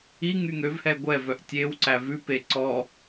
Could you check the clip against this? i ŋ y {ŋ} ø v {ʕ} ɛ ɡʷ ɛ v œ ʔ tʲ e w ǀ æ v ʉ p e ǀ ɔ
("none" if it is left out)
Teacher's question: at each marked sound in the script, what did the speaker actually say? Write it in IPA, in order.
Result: ŋ, h

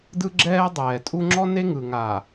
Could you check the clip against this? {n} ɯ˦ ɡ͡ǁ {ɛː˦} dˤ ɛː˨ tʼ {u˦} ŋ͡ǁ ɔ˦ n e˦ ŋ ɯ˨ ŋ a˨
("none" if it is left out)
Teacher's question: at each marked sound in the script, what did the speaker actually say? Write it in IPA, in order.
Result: d, ɛː˦, u˦

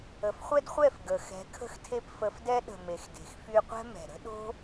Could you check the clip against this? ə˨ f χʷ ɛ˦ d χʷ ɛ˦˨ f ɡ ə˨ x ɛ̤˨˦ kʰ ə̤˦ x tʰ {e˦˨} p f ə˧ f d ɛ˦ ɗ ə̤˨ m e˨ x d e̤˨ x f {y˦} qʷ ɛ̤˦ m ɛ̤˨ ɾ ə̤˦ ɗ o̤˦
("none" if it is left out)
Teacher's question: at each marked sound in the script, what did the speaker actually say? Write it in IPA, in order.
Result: e˦, y˧

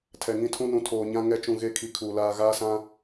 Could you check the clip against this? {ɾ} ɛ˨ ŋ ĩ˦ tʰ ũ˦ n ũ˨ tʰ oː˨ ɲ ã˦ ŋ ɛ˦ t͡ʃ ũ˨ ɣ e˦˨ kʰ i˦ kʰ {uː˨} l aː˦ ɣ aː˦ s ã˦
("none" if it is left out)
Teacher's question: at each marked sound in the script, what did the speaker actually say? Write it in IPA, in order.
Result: tʰ, uː˨

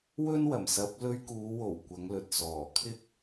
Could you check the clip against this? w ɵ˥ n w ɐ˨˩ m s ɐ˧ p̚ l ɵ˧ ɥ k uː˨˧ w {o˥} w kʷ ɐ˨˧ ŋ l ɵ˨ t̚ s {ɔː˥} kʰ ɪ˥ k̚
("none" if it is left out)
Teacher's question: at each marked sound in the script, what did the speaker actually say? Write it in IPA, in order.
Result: o˨˩, ɔː˨˩

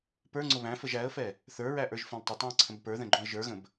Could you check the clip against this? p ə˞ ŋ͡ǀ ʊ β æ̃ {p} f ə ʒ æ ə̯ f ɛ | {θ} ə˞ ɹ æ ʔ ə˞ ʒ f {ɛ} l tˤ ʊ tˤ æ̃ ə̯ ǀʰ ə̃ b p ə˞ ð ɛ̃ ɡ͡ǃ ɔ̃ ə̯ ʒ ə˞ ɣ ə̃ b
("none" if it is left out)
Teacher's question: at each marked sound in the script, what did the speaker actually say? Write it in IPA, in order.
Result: none, θ, ɛ̃

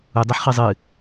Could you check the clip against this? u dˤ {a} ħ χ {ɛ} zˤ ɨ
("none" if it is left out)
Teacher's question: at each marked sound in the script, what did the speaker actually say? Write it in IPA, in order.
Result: ɐ, ɨ

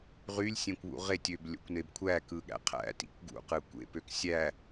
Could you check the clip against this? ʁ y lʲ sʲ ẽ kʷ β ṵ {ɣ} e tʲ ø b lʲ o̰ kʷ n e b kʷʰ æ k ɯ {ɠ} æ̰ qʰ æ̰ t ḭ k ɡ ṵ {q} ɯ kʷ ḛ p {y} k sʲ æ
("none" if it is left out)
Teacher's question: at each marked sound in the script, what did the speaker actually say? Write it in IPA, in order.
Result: ʁ, ɠ, q, ø

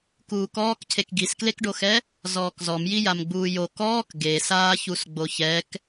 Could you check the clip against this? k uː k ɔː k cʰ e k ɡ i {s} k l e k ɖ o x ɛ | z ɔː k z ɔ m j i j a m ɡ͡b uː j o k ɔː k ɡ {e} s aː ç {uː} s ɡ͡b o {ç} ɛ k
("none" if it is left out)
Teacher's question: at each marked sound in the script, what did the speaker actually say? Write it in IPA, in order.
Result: s, e, u, ç

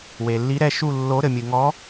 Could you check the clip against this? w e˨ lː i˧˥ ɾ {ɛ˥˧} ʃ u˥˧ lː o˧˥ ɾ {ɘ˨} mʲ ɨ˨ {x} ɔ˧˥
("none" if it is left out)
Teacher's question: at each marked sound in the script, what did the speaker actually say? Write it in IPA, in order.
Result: ɛ˥˧, ɘ˨, ŋ

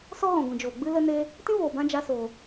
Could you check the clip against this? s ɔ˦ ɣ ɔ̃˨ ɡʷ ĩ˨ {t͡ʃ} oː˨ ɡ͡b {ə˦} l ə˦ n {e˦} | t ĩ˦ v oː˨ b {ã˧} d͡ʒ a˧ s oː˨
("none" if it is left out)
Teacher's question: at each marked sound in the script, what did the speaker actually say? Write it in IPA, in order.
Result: d͡ʒ, ɨ˦, e˦, ã˧

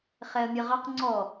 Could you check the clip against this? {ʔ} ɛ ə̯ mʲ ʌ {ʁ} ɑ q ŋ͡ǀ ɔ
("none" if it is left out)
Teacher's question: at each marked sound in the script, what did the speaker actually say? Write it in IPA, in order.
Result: χ, ʁ

